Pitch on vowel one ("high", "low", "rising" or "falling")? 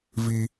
high